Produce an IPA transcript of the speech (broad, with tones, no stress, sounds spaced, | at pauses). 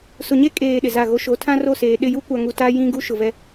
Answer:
s ʊ˨ ɲ e˦ kʼ eː˨ ɗ ɪ˨ z a˦˨ ɣ o˦ ʃ o˨˦ tʰ ã˦ r o˦˨ s eː˨ ɗ ɪ˦˨ j u˦ kʷ a˨ ŋ u˨ t a˦ j ĩ˦ ɡ u˦ ʃ ʊ˨ v ɛ˦